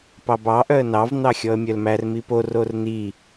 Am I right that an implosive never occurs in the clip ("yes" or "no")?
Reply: yes